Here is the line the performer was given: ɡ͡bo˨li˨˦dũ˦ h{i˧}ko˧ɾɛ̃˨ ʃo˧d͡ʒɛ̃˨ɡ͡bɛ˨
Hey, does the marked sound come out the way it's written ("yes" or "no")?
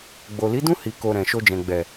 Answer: yes